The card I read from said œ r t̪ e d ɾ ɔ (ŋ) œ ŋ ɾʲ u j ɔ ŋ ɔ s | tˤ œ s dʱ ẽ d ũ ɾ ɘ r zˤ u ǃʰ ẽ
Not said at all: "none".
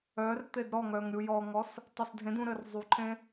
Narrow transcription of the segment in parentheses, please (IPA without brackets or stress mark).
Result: ŋ